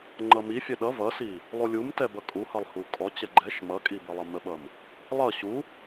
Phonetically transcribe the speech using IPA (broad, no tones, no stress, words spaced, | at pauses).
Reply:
ŋ͡ǃʌmifʲɛ ɗʌ vʌsi | lˠulʲum tɛbʌkʼuhʌlˠ hukʼɔt͡ɕɛ ɡ͡ǃɛʃ mʌkʼi bəlˠʌməɓʌm | lˠʌ ɕu